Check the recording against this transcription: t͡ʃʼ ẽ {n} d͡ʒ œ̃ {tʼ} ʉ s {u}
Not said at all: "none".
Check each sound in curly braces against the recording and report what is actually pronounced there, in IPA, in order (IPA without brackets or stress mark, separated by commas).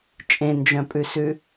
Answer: n, pʼ, ʉ